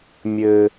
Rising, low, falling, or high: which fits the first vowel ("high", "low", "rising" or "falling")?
low